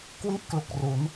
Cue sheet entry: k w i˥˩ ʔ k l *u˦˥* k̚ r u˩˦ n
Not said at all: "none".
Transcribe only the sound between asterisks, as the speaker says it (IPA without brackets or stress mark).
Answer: u˨˩